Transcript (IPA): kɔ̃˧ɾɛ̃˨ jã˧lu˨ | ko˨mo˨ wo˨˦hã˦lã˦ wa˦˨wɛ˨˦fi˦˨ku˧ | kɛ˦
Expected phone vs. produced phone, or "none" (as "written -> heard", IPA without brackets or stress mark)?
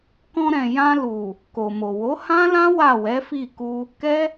none